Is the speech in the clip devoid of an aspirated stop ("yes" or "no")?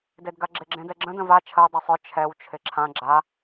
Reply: no